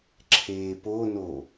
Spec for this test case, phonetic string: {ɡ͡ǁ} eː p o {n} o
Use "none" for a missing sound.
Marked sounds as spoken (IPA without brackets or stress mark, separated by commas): ǁʰ, n